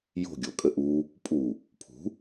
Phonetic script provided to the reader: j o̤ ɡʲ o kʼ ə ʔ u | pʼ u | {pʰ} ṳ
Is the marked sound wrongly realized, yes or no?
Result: no